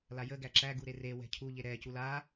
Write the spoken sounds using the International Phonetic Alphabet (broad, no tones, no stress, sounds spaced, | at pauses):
l a j ə ɡ æ ǁ æ ɡ u ɾ e r e w ɛ̤ cʰ u ʎ e ɾ ɛ c u l a